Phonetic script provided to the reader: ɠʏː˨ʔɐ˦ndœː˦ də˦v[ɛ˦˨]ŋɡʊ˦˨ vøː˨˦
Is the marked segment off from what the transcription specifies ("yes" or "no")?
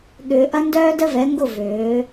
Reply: yes